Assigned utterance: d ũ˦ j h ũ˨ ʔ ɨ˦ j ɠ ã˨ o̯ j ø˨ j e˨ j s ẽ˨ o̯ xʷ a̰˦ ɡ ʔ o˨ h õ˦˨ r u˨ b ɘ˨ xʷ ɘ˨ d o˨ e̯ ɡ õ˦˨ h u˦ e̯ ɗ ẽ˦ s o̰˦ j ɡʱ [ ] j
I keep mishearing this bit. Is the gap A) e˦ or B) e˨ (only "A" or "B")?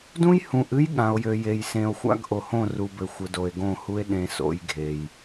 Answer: B